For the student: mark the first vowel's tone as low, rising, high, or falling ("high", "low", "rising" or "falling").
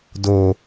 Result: high